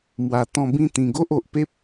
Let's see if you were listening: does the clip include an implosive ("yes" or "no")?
no